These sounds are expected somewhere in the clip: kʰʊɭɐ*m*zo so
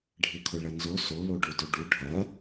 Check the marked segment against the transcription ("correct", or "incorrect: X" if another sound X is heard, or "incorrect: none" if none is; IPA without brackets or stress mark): incorrect: n